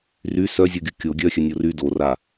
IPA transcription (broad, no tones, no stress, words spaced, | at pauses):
ry sœzʲoɡʲu kʲo ɡʲœxʲœnʲo ry dora